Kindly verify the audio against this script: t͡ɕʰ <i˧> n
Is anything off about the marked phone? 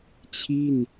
yes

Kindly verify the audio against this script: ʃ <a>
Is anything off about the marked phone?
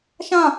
yes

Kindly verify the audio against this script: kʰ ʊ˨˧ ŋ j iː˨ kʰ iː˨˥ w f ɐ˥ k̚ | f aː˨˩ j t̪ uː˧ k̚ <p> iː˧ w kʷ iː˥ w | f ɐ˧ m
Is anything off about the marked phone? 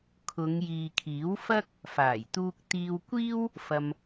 yes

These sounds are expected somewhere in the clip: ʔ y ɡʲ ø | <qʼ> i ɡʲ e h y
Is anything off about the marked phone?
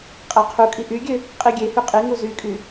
no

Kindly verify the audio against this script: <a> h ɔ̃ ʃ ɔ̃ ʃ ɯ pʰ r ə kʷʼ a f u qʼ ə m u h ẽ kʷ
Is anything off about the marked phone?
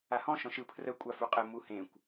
no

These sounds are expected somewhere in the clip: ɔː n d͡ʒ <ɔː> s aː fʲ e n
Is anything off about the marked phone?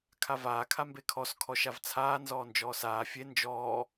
no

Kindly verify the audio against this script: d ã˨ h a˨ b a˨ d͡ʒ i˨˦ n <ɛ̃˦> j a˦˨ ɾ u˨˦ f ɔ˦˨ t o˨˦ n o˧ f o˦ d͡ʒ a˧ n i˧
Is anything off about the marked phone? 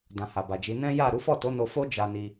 no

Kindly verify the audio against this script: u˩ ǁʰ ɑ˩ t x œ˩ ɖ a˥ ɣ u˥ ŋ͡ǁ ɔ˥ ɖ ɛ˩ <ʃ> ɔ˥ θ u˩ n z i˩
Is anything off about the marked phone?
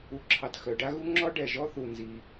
yes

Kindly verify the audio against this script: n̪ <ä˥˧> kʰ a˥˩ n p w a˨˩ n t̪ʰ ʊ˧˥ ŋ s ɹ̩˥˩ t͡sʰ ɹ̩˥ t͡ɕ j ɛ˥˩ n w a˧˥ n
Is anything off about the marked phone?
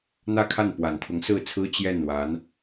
no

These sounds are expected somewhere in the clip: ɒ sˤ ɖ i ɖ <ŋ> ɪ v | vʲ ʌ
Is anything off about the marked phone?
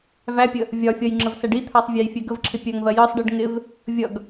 no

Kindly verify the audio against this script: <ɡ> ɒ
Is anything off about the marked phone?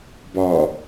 yes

